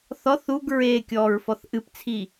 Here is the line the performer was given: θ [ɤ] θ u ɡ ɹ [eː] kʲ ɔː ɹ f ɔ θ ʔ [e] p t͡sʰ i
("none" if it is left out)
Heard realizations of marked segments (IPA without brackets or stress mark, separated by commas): ɔ, eː, ɨ